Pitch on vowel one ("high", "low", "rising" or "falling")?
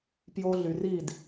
high